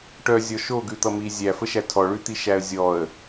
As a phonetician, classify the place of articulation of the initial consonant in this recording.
retroflex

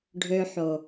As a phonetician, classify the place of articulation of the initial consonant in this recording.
retroflex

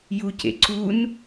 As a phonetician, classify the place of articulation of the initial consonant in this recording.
palatal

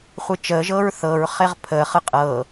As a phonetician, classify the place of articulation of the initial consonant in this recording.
uvular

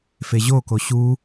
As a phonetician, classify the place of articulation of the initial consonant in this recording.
labial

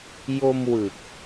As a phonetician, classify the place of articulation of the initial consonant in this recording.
palatal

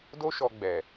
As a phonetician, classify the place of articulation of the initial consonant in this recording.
alveolar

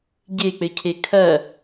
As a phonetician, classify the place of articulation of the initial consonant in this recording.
palatal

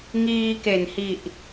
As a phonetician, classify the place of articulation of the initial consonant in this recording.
velar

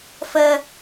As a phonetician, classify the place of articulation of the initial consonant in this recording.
labial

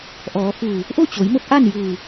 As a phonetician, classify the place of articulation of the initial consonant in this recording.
glottal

